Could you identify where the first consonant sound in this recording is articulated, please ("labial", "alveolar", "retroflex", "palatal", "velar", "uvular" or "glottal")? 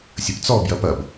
alveolar